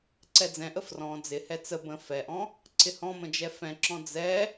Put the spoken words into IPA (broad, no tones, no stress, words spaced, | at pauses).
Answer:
ǀɛd͡zɛ̃ʔə frɔ̃ d͡zɪhɛ t͡sə bə̃ fɛʔɔ̃ | ǀɪhɔ̃mə̃ d͡ʒɛfɛ̃ǁɔ̃ d͡zɛ